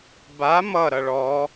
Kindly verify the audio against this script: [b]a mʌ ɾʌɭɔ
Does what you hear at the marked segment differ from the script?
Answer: no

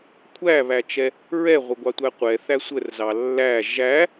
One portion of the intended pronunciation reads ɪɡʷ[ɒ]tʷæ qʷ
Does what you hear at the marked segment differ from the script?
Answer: yes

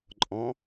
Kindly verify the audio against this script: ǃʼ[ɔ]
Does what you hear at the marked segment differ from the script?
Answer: yes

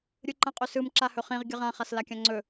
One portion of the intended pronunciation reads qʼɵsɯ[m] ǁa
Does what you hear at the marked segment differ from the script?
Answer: no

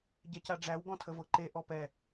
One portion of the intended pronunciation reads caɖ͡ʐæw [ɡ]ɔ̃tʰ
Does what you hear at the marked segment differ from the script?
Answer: no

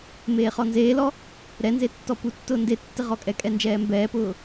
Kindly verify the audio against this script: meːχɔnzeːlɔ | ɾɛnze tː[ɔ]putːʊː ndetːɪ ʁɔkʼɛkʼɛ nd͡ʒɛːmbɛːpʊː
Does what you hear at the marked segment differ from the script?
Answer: no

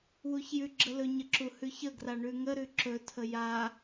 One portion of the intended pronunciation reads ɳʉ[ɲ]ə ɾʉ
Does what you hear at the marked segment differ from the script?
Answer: yes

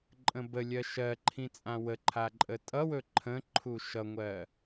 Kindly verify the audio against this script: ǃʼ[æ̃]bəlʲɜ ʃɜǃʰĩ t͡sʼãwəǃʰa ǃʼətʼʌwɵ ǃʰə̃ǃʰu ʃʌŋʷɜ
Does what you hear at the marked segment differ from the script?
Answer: yes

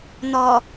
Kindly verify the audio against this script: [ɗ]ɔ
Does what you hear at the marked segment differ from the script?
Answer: yes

